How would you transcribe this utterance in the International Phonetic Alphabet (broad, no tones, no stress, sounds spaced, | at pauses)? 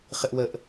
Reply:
χ ɪ ʔ w ə ʔ